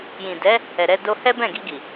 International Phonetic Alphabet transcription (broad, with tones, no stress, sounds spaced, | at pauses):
j ĩ˨ d ɛ˨˦ | ɛ˨ ɾ ɛ˧ d o˧ h ɛ˦ b ɛ̃˦˨ ɡ i˧ ɡ i˨